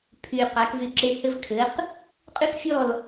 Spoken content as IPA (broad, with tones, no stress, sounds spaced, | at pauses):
pʰ y˨ q a˨˦ k v y˧ ǁ e˧ h ɘ˦ v kʰ ɘ˨˦ q | qʼ y˦ k fʲ ɔ˦˨ l